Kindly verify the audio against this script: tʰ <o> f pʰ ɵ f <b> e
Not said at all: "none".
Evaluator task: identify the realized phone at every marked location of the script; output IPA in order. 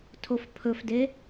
o, d

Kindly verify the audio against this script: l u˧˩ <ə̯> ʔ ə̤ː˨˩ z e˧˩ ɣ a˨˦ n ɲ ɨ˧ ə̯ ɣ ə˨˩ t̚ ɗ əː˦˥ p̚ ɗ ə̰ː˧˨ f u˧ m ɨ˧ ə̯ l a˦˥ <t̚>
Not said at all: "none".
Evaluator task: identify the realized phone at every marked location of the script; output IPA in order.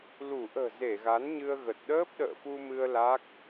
none, k̚

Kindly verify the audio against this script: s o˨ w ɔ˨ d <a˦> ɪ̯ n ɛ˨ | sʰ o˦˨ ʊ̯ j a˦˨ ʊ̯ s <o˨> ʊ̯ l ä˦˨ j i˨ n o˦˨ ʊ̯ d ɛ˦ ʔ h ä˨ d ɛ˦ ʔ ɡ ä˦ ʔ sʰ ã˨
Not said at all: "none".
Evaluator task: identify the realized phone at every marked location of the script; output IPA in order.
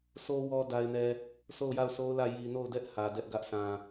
a˨, o˦

